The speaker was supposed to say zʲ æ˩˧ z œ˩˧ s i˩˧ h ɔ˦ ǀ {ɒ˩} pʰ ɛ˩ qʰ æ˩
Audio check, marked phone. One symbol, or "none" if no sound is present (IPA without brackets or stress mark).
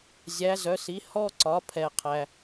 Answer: ɒ˩˧